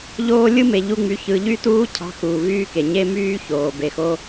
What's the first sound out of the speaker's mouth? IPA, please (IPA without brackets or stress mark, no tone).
ʎ